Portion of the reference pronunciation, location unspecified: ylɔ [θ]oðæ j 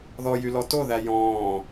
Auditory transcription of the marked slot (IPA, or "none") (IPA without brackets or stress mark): t